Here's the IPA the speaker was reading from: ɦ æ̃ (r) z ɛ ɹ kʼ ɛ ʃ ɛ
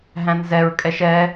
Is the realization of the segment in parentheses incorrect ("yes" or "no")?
yes